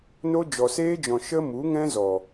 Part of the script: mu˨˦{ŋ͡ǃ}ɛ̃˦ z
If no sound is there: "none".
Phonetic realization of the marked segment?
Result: ŋ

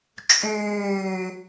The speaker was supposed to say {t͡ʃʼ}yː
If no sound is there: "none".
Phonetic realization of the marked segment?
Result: t͡ʃʼ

